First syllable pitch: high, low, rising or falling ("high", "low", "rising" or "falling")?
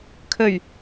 low